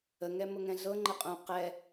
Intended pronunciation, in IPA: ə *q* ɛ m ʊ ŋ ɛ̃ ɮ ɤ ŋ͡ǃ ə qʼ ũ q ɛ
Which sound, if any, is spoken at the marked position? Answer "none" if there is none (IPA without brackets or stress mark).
ŋ